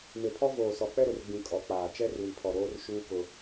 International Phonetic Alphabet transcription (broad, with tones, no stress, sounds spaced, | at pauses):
m e˨ pʰ ɔ˦ v oː˨ s ɔ˨ k͡p ɛ˦ ɾ ʊ˨ r ɡ͡b ĩ˨ kʼ ɔ˨ k͡p aː˨ t͡ʃ ɛ˦ r w i˨ pʰ ɔ˨ ɾ oː˦ r ʃ uː˦ k ʊ˦